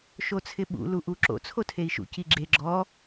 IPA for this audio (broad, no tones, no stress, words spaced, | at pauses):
ʃot͡sʰɪɓṵ luʔuǁo̰ t͡sʰotʰei̯ʃṵ ciɡ͡ǁe ɡ͡ǁɔ